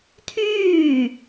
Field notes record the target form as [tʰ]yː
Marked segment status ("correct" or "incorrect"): correct